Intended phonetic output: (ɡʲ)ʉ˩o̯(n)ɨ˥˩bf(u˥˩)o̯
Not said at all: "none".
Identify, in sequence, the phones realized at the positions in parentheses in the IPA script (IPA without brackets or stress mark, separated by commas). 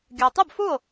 ɡʲ, tˤ, u˥˩